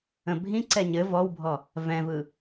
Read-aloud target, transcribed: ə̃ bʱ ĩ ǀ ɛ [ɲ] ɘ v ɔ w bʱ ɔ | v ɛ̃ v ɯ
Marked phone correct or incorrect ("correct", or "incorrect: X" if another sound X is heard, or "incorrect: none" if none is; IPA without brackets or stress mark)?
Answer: correct